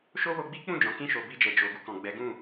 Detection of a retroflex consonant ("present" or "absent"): absent